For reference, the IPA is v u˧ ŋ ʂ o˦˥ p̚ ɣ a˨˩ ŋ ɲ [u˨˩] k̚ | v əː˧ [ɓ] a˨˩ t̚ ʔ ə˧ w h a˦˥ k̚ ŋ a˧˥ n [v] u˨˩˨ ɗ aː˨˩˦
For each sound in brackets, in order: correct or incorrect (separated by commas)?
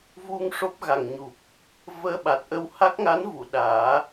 correct, correct, correct